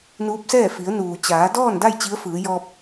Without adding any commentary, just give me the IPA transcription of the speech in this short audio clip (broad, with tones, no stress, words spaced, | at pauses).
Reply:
nuː˧˥p̚sɛː˥˨ fi˩˧ə̯nuː˩t͡ɕaː˩˧ dɔː˥˨nda˥˨j t͡ɕi˧˥ə̯ fɯː˩˧ jɔː˧p̚